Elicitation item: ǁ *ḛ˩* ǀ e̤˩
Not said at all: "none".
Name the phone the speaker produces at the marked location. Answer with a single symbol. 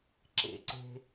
ḛ˩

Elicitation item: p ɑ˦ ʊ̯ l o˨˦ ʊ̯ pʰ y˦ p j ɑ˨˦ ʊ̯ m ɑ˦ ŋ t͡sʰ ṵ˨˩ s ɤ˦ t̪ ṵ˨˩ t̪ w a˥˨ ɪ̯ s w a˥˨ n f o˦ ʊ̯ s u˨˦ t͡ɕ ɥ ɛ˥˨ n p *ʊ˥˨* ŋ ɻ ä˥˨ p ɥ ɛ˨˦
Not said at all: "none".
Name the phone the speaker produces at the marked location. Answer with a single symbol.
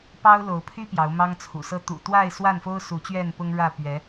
ʊ˦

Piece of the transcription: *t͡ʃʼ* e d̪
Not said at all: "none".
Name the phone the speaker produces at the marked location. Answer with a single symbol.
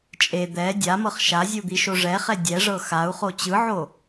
t͡ʃʼ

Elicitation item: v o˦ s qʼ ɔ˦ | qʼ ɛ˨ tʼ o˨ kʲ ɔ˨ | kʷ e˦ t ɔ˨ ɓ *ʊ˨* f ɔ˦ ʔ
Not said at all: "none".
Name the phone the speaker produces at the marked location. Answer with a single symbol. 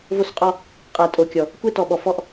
ɔ˨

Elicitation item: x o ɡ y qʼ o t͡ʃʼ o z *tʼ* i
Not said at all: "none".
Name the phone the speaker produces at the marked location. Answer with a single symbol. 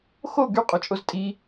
tʼ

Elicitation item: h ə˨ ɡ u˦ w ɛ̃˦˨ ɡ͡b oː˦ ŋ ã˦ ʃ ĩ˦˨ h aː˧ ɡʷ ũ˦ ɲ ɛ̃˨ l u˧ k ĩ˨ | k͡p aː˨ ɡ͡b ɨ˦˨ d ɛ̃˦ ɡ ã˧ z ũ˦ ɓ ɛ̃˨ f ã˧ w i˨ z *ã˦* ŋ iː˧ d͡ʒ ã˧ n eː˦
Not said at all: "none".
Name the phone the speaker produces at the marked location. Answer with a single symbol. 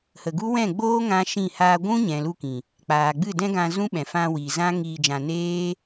ã˦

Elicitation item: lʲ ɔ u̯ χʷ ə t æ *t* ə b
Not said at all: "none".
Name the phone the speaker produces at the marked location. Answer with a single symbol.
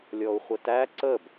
ǀ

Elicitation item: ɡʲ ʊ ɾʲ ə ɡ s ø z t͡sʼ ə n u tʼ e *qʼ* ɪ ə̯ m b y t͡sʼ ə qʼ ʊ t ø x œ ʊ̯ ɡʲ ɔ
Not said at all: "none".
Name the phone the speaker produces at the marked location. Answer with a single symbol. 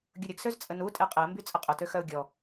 qʼ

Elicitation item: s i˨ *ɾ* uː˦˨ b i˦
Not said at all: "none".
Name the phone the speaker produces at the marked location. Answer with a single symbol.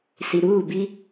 ɾ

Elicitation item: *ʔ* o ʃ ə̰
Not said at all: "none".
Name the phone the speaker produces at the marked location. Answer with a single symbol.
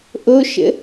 ʔ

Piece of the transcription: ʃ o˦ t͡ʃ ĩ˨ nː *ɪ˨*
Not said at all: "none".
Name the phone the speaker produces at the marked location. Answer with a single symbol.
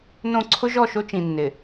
ɪ˨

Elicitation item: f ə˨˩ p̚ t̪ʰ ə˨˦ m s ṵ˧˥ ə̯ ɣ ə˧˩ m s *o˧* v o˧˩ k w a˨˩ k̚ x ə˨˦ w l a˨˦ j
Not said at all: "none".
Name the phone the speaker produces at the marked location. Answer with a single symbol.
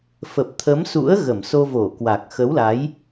o˧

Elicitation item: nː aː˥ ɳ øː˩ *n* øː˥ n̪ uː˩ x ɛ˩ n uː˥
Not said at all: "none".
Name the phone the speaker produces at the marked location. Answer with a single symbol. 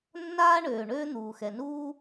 ɳ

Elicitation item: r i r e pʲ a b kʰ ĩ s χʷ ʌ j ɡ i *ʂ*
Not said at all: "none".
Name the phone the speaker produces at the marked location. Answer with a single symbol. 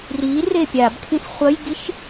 ʃ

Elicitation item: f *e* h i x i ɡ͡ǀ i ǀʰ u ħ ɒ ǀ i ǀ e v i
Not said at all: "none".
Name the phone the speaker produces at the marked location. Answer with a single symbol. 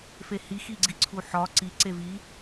e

